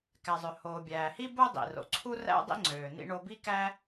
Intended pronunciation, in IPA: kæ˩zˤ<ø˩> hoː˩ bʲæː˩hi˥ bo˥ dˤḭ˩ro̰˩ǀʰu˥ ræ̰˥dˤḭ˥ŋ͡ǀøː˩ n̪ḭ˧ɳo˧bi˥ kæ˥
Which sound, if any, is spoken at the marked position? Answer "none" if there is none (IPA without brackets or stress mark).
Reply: ø˩